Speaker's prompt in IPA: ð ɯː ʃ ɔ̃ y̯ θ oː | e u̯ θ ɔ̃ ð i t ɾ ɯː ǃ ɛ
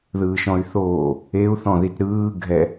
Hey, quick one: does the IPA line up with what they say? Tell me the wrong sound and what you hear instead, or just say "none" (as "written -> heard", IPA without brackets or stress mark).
ǃ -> ɡʱ